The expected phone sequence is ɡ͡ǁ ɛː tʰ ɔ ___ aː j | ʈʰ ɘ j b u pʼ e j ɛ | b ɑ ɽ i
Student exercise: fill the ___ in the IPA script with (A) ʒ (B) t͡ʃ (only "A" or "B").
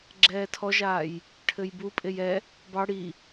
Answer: A